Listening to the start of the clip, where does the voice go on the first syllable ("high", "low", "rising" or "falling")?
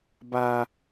high